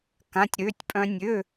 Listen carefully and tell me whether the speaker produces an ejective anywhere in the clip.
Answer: yes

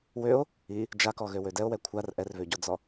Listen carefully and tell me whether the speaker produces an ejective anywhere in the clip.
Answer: no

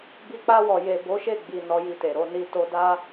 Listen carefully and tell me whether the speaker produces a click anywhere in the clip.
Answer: no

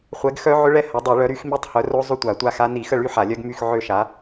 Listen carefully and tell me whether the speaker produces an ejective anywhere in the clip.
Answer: no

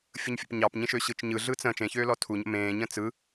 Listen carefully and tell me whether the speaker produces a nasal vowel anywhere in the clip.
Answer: yes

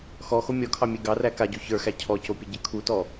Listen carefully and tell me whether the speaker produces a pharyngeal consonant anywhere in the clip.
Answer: no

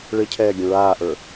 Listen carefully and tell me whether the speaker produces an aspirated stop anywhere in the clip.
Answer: yes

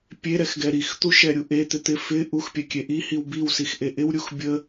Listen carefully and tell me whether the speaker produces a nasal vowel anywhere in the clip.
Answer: no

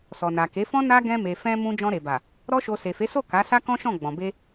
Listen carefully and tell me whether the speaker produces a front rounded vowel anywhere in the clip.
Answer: no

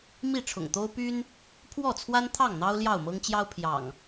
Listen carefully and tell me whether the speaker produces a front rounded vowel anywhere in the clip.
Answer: yes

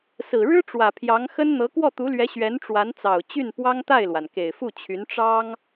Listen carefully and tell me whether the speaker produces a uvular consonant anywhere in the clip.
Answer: no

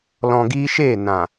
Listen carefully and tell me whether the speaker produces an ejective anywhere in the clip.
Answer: no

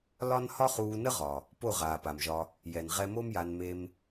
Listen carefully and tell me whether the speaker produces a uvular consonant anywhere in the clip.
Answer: yes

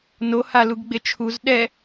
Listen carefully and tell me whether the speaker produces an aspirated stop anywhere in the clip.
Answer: yes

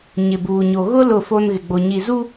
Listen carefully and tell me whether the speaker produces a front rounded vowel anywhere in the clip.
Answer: no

